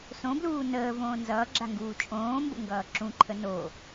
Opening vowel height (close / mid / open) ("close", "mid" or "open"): mid